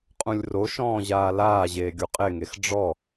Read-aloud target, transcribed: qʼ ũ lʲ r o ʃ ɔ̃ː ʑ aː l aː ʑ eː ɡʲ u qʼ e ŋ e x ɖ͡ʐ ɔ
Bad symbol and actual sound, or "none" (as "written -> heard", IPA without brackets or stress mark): none